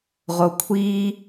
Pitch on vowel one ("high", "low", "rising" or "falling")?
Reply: low